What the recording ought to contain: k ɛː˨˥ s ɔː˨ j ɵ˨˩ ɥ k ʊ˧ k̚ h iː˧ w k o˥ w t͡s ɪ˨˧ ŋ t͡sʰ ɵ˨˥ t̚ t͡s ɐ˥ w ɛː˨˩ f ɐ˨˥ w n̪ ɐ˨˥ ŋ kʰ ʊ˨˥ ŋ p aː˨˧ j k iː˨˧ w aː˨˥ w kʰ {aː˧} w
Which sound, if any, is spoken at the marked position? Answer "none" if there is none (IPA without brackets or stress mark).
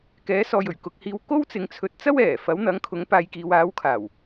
aː˨˩